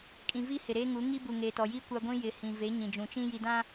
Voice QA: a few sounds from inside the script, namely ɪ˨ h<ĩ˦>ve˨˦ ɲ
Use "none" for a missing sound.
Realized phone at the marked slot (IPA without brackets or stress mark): ĩ˨